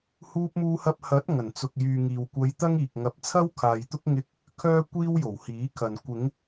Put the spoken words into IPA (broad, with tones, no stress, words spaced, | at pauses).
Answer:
huː˧p̚muː˧hɐ˧p̚ hɐ˨˥t̚ ŋɐ˨˩nt͡sʊ˨k̚ jyː˨ŋiː˨wkʷɐ˧j t̪ɐ˥ŋiː˨k̚ŋɐ˧p̚ t͡sʰɐ˥wkʰaː˨jt̪ʊ˥k̚ ŋɪ˧k̚ | kʰœː˥kʷiː˥wjo˨˩whiː˨˥ kʰɐ˨n kʷɪ˨˧ŋ